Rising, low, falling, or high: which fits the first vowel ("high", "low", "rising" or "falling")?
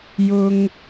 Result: high